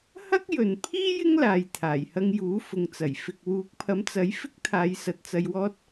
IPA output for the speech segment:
h ɐ˥ k̚ j ɵ˨ n pʰ iː˥ j ɪ˥ ŋ l aː˨ j t̪ʰ aː˨˩ j h ɐ˧ ŋ j uː˨˥ f ʊ˨ ŋ t͡s ɐ˨˩ j f ɪ˨ k̚ w uː˨˥ k̚ pʰ ɐ˨˥ m t͡s ɐ˨˥ j f ɪ˥ k̚ t̪ʰ aː˨˧ j s ɐ˨ t̚ t͡s ɐ˧ j w ɔː˥ t̚

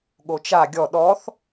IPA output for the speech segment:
ɠ o t͡ʃ a ɡʲ ɔ ɗ ɔ θ

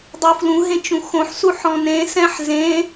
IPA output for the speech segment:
dˤ u f l ũ ɦ ẽ t͡ʃ ũ x õ ħ s u ħ ɔ̃ n ẽ s ɛ̃ ħ z ẽ

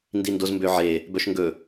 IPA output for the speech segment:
n d i n d o z m b ø ʕ e | b œ ʃ ŋ ɡ ɵ

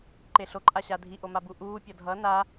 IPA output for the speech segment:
ǃ e ɬ o ǃʼ a ɕ a dʱ i ʔ o m a b u ʔ uː pʲ ʌ dʱ ʌ n a

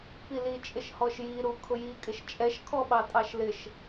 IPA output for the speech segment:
p i l i t͡ʃʼ ɪ ʃ h ɔ ʃ j i ɾ u kʰ ʊ j i kʼ ɪ ʃ t͡ʃʼ ɛ ʃ kʰ ɔ ɓ ɑ tʼ ɑ ʃ l ɪ ʃ

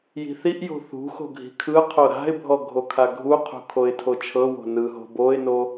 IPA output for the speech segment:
j i̤ θ i ʔ j o̤ θ ṳ x o̤ ɡʱ i̤ kʰ ɯ qʰ o ɾ a̤ ɪ̯ bʱ ɔ ɡʱ o kʰ a ɡʱ u qʰ ṳ kʰ o ɪ̯ tʰ o t͡ʃʰ ɤ w o̤ n ɯ ɦ o̤ b o ɪ̯ n o

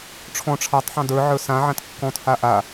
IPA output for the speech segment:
ʈ͡ʂʰ ɔ̃ ʈ͡ʂʰ a tˤ ħ ɑ̃ d ə˞ ʕ ə˞ s ã ʕ ã t kː ɔ̃ t h a ʔ a

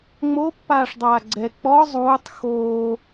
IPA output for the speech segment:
ŋ͡m o pː aː ʂ dˤ aː ɡ͡ǀ ɛ k͡p ɔ zˤ uː tˤ x oː

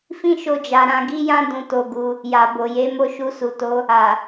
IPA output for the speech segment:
f ĩ˦ ʃ o˧ d͡ʒ a˨ ɾ ã˧ ɡ i˦ j ã˦ d ũ˧ t o˧ ɡ u˧ | j a˨ b o˨ j e˨˦ m o˧ ʃ u˧ s u˨ t o˧ | a˨

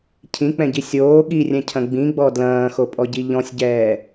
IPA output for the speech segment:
cʰ ĩ k͡p ɛ̃ ɟ i sʲ oː ɠ i rʲ ɛ̃ cʰ ɐ̃ ɡ͡b ĩ ɡ͡b ɔ d l ɐ̃ː x o pʼ ɔ ɟ i ʎ ɔ̃ sʲ ɟ ɛː

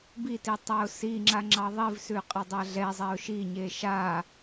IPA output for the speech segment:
b i t i tˤ a ʊ̯ s i ŋ͡ǁ a ŋ͡ǁ ɑ ðˤ i v s ʉ qʼ ɛ dˤ a ɮ ɛ zˤ ɛ ʊ̯ ʃ i ɲ e ʃ a

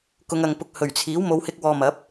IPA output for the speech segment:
k ʊ˨˧ ŋ ɐ˨ ŋ p ʊ˧ k̚ h ɵ˨˩ ɥ t͡sʰ iː˨˥ w m o˨˧ w h ɪ˧ k̚ w ɔː˧ m ɐ˨˥ p̚

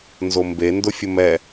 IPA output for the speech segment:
n z o m b e n d ʊ fʲ ʊ m ɛ

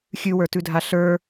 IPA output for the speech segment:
xʲ ʉ w ə˞ t ʉ dʱ a ɬ ə˞

